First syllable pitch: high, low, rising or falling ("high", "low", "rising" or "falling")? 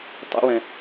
high